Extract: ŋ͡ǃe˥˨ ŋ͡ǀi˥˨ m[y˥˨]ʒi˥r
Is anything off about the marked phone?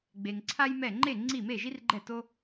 yes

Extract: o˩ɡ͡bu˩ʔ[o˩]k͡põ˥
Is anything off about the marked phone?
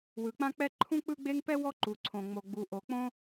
no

